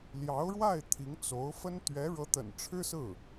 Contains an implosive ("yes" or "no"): no